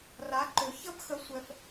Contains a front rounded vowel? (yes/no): yes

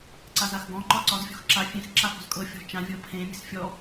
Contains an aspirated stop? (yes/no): yes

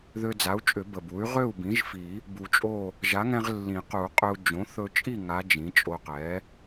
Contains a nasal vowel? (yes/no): yes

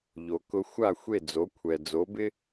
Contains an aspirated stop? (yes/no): yes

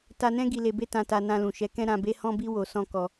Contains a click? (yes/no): no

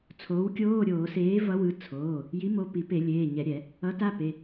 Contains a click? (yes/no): no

